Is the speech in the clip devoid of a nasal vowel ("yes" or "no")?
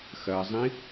no